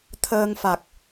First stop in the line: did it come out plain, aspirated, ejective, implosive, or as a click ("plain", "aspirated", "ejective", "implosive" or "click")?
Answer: aspirated